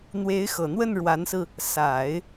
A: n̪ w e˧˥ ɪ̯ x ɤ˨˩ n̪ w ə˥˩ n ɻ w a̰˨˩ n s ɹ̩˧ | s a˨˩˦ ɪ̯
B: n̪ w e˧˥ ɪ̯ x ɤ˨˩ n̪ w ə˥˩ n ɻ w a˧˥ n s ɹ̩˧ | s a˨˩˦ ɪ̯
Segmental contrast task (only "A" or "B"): B